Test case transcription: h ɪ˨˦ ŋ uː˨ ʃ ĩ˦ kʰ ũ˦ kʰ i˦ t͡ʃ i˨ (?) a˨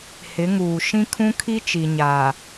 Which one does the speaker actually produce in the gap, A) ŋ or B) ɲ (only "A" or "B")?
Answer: B